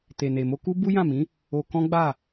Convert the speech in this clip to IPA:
te˨ne˨mo˧ ku˦bu˦jã˦˨mĩ˨˦ | o˧ kɔ̃˦ɡ͡ba˦˨

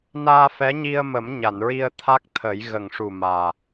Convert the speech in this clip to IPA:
naː˧fɛ˧˥ɲi˧ə̯mə˨˩˦m ɲa˨˩˨nɹi˧ə̯ t̪ʰa˦˥k̚t̪ʰə˨˩˦j ɣə˨˩ŋʂu˨˩ maː˨˩

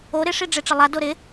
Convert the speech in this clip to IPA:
o ɾɪʂi ɖ͡ʐeʈ͡ʂɪlˠa doɾɪ

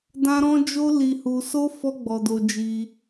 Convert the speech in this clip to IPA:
dã˦ɾɔ̃˦ d͡ʒo˦li˧hu˧so˦ fɔ˦ɡ͡bɔ˧do˧ d͡ʒi˧

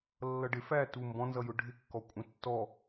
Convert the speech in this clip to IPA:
lːʌɖɪ fæ tu mbɔ̃nzʌjʊ ɖʱɪkːɔ kʷʼə̃ tːɔ

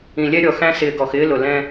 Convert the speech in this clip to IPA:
ĩ˨lʲɛ˧ɾʲɔ˨xæ̃˧ sɪː˨ɡɔ˨xɪː˧ lʊ˨ lɛ̃˧

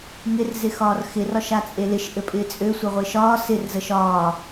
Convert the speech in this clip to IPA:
ŋɪr zɪxɒːrxɪ rɒʃat͡sʼelɪʃ ʔɘpʼɪːt͡sʼø sʷəʁʷɪːʃɒː sɪr zəʃɒː

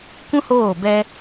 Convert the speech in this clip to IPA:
kʷũ˦hoː˦˨ bɛ˧

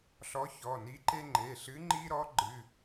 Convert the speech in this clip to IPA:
ɬɔ˧˥çɔ˩˧˩ni˧˥ǃe˥ ŋ͡ǃe˩˧˩ɬɨ˧˥ ŋ͡ǃi˥ɾɔ˧˥ ɡ͡ǃɨ˩˧˩

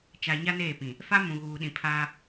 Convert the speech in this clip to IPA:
t͡ʃa˨ɲa˦ neː˦˨pĩ˨ | fa˦ mũ˨ɣuː˨ ɗĩ˨pʰaː˦

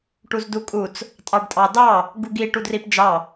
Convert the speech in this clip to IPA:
ʈuzdukʼut͡s | tʼɑɖtʼɑdɑ | ɡuɡi ʈudripd͡ʒɑ

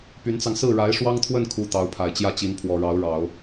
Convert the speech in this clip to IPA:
py˧˥nt͡sɑ˧ŋ sɹ̩˥˩ɻa˧˥ɪ̯ʂwɑ˥ŋt̪ʰwə˥˩n kʰu˥t̪ɑ˧˥ʊ̯pʰa˨˩ɪ̯ t͡ɕjä˥˩t͡ɕi˧˥npʰwɔ˨˩ ɻɑ˧˥ʊ̯ɻɑ˨˩˦ʊ̯

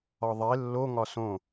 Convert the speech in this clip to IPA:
ɒðˤe lːoŋɒ sõ

